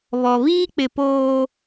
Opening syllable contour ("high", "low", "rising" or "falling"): low